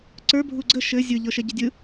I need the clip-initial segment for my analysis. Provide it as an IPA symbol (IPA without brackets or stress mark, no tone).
ǀ